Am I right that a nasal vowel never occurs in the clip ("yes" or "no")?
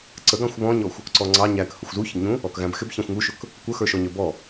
no